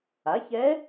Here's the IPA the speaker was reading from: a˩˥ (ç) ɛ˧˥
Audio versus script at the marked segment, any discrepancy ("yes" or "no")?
no